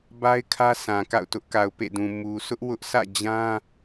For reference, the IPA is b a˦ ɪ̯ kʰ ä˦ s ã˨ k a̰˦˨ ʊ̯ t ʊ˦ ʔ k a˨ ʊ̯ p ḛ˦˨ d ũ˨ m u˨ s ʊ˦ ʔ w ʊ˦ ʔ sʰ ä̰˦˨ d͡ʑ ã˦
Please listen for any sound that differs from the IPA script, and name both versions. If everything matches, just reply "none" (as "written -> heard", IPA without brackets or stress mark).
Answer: none